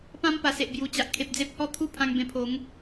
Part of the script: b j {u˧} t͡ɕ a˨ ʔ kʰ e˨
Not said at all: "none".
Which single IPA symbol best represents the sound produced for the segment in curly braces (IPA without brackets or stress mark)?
u˨˩